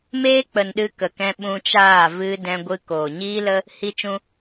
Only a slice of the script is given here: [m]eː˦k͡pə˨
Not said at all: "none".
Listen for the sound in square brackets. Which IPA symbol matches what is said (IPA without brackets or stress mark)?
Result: m